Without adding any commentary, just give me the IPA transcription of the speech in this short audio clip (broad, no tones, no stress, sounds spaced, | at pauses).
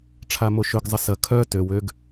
ʈ͡ʂʰ a m o ʃ ʏ ɡ zˤ ə s ɐ kʰ œ t ø w ø ɡ